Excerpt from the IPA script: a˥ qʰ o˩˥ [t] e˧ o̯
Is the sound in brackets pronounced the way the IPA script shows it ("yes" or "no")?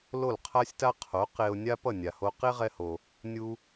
no